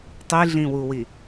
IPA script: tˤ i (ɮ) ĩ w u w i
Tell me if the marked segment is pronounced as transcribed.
yes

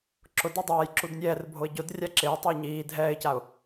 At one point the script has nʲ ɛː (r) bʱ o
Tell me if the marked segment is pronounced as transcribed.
yes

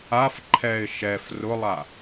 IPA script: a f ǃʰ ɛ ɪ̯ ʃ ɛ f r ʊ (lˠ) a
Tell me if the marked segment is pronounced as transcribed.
yes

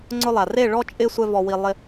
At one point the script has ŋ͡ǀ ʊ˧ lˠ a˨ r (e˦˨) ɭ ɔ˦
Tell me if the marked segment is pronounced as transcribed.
yes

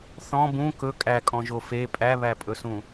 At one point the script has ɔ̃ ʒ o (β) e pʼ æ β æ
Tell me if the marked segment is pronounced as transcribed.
no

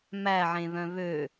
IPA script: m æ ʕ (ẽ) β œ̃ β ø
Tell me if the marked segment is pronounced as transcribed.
yes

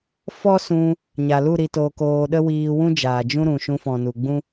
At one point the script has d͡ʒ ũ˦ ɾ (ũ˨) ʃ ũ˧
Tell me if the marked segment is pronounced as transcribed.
yes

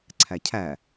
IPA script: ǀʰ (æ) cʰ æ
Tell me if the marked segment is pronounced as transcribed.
yes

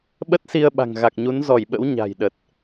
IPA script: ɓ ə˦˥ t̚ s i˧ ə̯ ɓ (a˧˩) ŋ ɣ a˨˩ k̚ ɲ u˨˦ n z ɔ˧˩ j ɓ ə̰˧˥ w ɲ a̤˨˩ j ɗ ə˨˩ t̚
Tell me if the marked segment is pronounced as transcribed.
no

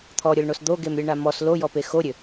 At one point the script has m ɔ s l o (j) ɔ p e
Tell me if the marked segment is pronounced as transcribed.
yes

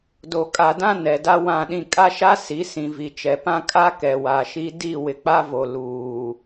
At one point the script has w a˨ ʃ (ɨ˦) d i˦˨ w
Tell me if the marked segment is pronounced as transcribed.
no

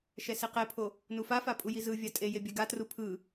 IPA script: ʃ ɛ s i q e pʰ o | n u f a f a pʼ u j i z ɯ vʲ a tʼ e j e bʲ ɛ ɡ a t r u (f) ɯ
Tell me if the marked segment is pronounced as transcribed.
no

